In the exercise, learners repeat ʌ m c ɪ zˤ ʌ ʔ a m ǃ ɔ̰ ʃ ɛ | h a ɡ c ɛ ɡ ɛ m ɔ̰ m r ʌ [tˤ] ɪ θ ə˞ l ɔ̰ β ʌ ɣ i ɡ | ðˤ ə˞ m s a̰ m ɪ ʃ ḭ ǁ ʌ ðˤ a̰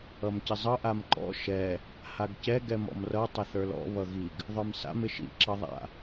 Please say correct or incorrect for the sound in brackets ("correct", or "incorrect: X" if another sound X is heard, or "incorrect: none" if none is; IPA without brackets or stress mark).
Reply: correct